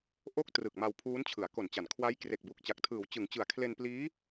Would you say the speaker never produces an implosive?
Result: yes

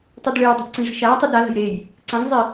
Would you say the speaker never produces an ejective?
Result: yes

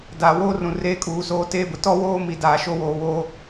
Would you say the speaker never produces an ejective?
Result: no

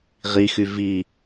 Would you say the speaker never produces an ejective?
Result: yes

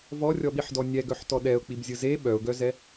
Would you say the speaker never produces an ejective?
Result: yes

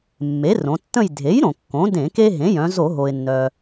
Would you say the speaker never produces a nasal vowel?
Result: no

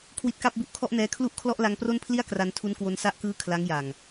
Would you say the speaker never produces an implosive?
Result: yes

